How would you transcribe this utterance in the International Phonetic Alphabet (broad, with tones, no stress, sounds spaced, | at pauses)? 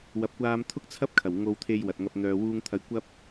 w ɐ˨ p̚ kʷ aː˧ m t̪ʰ ʊ˥ k̚ t͡sʰ ɐ˥ p̚ kʰ ɐ˨˩ w ŋ o˧ w t̪ʰ e˧ j w ɐ˨ t̚ ŋ ɐ˧ p̚ n̪ œː˨ w uː˧ ŋ t̪ʰ ɐ˧ j kʷ ɐ˧ p̚